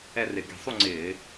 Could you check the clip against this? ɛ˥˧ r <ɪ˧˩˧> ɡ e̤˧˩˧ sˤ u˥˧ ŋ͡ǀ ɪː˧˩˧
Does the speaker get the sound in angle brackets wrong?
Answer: no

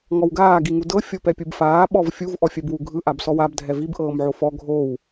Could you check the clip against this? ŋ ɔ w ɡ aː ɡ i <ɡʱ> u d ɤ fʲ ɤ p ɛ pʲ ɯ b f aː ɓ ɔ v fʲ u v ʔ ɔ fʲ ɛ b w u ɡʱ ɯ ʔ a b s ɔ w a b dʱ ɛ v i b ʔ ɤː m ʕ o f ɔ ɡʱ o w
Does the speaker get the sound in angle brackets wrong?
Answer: yes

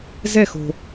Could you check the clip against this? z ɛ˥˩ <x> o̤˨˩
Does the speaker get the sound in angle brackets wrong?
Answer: no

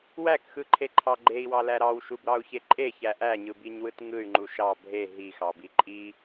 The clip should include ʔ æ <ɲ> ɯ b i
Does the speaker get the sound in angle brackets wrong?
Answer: no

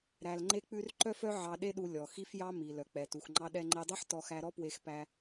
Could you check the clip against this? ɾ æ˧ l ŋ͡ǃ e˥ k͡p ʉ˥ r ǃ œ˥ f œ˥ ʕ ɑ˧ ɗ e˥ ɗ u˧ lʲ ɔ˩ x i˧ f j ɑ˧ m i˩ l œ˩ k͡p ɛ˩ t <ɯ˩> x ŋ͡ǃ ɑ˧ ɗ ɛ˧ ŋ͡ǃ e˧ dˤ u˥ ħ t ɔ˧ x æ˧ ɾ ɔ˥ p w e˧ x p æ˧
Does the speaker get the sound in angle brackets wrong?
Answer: yes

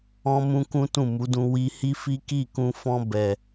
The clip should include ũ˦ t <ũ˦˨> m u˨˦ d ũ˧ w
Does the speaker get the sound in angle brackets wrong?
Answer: no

